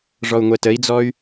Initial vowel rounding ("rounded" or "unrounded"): rounded